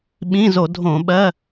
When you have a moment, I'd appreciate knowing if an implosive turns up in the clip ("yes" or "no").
yes